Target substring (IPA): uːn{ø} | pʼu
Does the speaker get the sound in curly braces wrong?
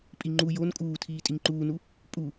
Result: yes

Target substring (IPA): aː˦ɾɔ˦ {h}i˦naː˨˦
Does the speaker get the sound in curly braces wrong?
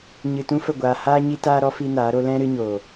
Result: yes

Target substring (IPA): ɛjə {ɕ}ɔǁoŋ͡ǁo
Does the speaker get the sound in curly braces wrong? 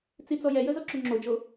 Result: yes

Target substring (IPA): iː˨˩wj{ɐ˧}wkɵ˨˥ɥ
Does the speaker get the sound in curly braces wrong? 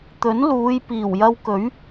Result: no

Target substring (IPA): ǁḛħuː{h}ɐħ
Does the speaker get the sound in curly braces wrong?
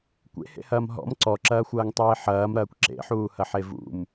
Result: no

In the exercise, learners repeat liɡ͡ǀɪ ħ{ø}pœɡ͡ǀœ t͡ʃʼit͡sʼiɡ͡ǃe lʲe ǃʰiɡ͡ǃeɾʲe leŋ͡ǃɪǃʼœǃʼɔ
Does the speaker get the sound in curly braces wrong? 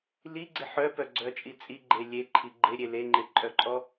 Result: yes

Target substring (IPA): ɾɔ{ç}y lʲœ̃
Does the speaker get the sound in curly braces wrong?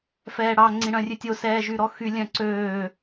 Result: yes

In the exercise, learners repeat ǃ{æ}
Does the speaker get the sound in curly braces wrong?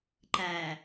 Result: no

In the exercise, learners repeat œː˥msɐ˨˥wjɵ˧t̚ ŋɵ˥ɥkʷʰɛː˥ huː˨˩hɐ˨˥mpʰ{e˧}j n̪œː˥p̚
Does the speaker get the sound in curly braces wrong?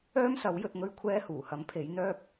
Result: yes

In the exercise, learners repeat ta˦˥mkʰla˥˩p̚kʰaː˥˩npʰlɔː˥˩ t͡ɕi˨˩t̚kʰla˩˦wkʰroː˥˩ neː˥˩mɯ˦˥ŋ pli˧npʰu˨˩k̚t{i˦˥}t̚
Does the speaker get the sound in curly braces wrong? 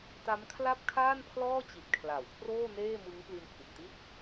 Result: yes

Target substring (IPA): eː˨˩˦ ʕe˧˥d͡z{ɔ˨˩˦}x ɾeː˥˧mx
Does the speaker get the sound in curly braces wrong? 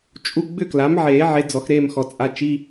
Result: no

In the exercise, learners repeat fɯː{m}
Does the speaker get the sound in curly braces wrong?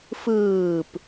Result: yes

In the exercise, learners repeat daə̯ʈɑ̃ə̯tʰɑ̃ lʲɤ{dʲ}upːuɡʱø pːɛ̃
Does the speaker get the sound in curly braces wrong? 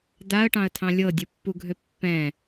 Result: no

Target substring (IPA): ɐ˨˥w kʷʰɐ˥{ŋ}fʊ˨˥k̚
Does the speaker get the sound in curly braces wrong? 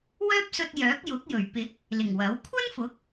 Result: yes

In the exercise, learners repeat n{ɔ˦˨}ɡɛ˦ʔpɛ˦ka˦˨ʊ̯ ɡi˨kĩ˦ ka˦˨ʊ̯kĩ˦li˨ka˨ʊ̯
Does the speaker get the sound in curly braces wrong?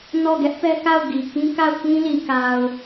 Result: no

